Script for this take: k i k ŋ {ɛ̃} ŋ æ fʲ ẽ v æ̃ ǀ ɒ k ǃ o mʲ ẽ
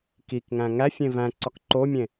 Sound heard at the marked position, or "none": æ̃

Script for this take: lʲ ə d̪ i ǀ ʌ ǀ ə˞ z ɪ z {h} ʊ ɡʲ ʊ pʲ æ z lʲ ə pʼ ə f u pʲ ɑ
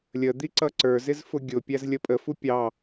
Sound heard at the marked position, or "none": f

